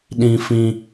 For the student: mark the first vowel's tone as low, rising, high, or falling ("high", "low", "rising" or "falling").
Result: low